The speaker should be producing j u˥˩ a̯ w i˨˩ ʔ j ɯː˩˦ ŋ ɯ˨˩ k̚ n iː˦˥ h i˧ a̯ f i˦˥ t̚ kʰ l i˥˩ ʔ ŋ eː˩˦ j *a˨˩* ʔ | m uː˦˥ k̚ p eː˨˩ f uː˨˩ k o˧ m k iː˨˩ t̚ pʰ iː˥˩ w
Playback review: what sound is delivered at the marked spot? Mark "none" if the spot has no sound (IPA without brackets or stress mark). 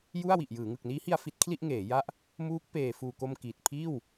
a˦˥